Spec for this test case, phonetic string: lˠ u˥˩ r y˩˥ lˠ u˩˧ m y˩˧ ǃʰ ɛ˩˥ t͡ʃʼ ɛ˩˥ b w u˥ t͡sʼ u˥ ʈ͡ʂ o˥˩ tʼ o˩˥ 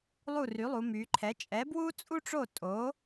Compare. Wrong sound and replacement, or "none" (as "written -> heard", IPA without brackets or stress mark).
none